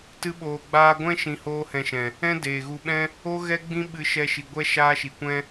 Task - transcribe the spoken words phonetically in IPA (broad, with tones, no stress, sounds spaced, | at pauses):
t ɨ˦ ɓ oː˨ ɡ͡b aː˧ ɡʷ ɛ̃˦ ʃ ĩ˧ h oː˦ h ɛ̃˧ ʃ ɛ̃˨ | ɛ̃˦ d eː˨ ɣ u˧ ɓ ɛ̃˦ | o˦ ɣ ɛ˦ ɡ͡b ĩ˦ ɓ ɨ˧ ʃ ɛ˧ ʃ i˨ ɡʷ ɛ˦ ʃ aː˦ ʃ i˨ kʷ ɛ̃˦